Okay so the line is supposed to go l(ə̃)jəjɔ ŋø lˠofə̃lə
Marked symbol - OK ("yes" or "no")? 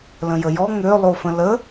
yes